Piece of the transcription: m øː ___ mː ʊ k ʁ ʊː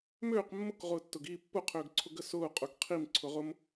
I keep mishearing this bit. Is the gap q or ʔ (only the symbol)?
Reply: q